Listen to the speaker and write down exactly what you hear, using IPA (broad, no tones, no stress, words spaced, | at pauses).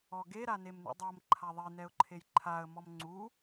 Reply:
ɔɡe ɾanemnṵdˤɤm ǃʰaðˤe nɛʊ̯ǃʰejǃʰaə̯ mɔmŋ͡ǀu